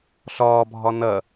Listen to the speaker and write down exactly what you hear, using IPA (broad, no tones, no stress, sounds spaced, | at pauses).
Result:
ɬ ɒː bʱ ɒ n ɐ